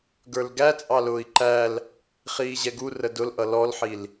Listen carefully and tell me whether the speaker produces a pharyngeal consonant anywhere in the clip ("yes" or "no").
yes